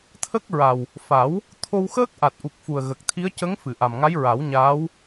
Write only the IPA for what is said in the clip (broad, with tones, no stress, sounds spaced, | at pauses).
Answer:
t̪ʰ ə˦˥ k̚ ɹ a˨˩ w | f a˨˩˦ w | t̪ʰ o˧ w x əː˦˥ k̚ ʔ a˨˩ t̚ ʔ u˨˩ k̚ f u˨˩ ə̯ ɣ ə˨˩ k̚ t̪ʰ i˧˥ ə̯ c ə˧˥ ŋ f ɨ˨˩˨ ʔ a˨˩ m ŋ a˧˥ j ɹ a˨˩˦ w ɲ aː˧˥ w